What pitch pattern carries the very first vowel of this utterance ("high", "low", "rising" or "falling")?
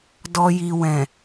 low